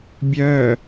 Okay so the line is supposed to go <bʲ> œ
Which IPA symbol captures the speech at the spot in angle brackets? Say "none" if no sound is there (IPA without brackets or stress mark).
bʲ